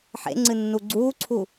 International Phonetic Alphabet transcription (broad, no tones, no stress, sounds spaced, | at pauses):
ħ ḛ ŋ͡ǀ ɨ nː u ɡ͡ǀ uː ǀʰ u